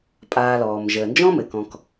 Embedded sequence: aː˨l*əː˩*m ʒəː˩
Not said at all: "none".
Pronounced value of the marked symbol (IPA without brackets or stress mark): ɔː˩